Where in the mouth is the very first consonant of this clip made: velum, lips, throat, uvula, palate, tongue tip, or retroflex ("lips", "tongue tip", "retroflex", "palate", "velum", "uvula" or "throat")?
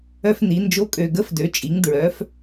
lips